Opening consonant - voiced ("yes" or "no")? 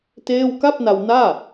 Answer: no